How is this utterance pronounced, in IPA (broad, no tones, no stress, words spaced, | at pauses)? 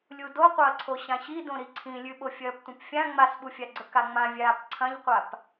lʲudoqʷɐːǀʰo ɕãɕidõɾi ǀʰĩlʲʉɓo fʲɐːptʷɐ̃pfʲã ŋ͡masɓufʲaɡ͡ǀɵ kaŋ͡mãvʲaːp ǀʰɐ̃ʎqʷap